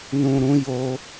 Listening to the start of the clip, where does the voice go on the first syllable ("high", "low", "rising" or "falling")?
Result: low